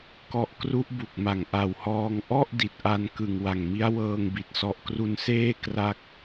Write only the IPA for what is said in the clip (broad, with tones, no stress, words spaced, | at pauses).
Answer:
kɔ˦˥ʔ kru˦˥ʔbu˨˩k̚ma˨˩ŋ ʔa˨˩whɔː˧ŋ ʔɔ˥˩ʔ di˨˩t̚ʔa˧n kɯ˨˩ŋwa˨˩ŋmi˦˥a̯wɤː˧ŋ bi˨˩t̚sɔ˥˩ʔ kru˧nseː˥˩ kra˥˩k̚